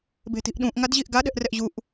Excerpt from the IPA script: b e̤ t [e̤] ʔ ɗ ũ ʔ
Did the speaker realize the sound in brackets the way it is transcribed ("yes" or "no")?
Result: no